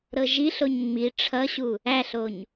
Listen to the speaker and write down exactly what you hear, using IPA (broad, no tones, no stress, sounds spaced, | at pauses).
ɾ ɤ ʒ i ɬ o ɲ ŋ͡m i ʈ͡ʂʰ ʌ ɕ u | æ ɬ o ɲ